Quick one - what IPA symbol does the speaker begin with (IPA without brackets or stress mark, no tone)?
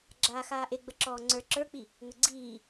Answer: ɡ͡ǁ